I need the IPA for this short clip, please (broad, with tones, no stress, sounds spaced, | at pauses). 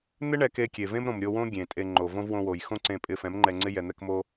n̪ ɪ˦ ɳ ɛ˧ k e˧ kʲ e˨ v ẽ˦ m ɾ õ˨ m ɾʲ o˧ w õ˦ ɡʲ ẽ˨ tʼ e˧ ŋ͡ǃ o˨ v õ˦ v w õ˧ w o˨ j x õ˦ ǀ ẽ˧ pʼ ɪ˧ f ɛ̃˨˦ m ŋ͡ǃ ɛ˧ ŋ͡ǀ ɪ˦ j ɛ˧ n̪ ɛ˦ k m o˦